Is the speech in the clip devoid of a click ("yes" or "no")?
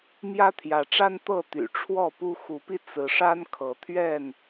yes